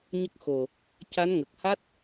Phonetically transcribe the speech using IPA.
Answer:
ɲə˦˥k̚xo˨˩ | ca˧˥nŋə˨˩k̚ ha˦˥t̚

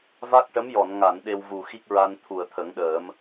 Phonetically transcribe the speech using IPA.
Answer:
va˦˥k̚ʈə˧˥mjɔ˨˩˨n ŋa˨˩˨n ɗe˧wvu˨˩ xi˦˥k̚ɹa˧n t̪ʰu˨˩˨ə̯t̪ʰə˨˩˦ŋɗəː˨˩˦m

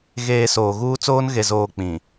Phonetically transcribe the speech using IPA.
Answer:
ɣeː˨ soː˨ɣuː˦t͡soː˦n ɣe˨zoː˨ k͡pĩ˨

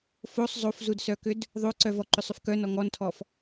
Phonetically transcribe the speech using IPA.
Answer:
fosˤ zˤofzudsœkʏd | ðˤoǀœ vɔǃʏsˤʏf kœnɔ ŋɔntʰɔf

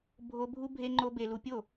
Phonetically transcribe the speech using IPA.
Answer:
bʱo˦ bʱu˦ bʱe˦ŋ͡ǃo˦ be˧lu˧ pʲo˦˨

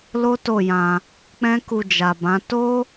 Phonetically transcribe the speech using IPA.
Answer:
lo˦to˦˨jã˧ | k͡pɛ̃˦ku˧d͡ʒa˨bã˨˦ to˦

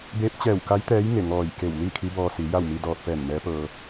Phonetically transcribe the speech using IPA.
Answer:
beː˧˥p̚ t͡ɕɛː˧˩wka˧˥jt̪ɛː˧˥j ŋe˧˩ŋɔː˧˩jke˧˩w li˥˨ kʰi˧˥bɔː˧si˩˧ ja˥˨wmi˧dɔː˧t̚pɛː˧˩n mɛː˧˥pɤː˧

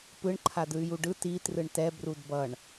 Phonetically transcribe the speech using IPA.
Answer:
pɯɳǃʰadɯy̯ juɖɯ ti trɯɳtɛ brudbʌɳ

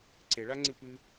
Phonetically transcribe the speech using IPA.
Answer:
ǀeɭaŋ͡ǀɨ pɨ

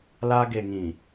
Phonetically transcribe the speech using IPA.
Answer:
la˦ ɡe˨ŋĩ˨

